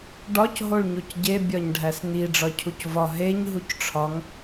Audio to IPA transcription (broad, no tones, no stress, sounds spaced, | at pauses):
ɖ ɒ c ɦ o ɭ ɲ o c ɟ e bʲ ɒ ɲ ɖʱ æ s n i ɖ͡ʐ ɒ cʰ u c v ɒ ɦ e ɲ ɦ u c ʈ͡ʂʰ ɒ ŋ